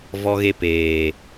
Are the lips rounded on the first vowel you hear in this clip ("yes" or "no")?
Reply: yes